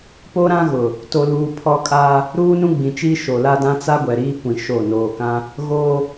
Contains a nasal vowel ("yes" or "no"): yes